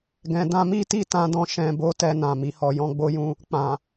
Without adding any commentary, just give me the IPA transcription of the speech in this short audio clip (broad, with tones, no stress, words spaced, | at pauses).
ɡɛ̃˨dã˧mi˦ti˦˨ tã˧dɔ̃˧ ʃɛ̃˨bo˨˦ tɛ˧nã˨ mi˨hɔ˨ jɔ̃˧ɡ͡bo˦jũ˦ | k͡pã˨